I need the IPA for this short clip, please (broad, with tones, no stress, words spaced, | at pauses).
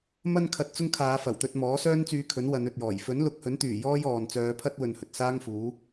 mɐ˧nkʰɐ˨t̚t͡sʊ˧ŋ kʰaː˨˧fɐ˨˩wt̪ɵ˧t̚mɔː˨˥ sœː˥nt͡syː˧kʰɵ˨˥n wɐ˨˧nɵ˨t̚jɔː˨˩j fɵ˨˥nlʊ˨˥k̚hɵ˨˥nt̪yː˨˩ jɔː˥jɔː˨n t͡sœː˨˧pʰɐ˥t̚ wɵ˧nhɵ˨t̚ saː˥ŋfuː˨˥